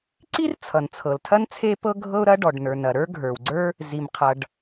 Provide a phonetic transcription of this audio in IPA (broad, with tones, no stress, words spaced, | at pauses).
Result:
ǀi˥r t͡sʰʌ˩n t͡sʰɤ˩ltʰɐ˥n t͡sʰe˥pɤ˥ ɡʱɤ˥ʊ̯ɾɐ˥ɖɔ˩ɖnə˞˩n ɐ˩ɾə˞˥ ɡʱə˞˩wɡ͡ǀə˞˥ | zi˩mqʰʌ˩ɖ